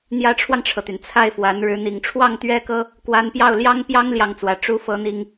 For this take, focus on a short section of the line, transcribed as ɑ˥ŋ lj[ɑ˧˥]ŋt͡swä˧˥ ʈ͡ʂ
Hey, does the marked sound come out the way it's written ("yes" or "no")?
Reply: no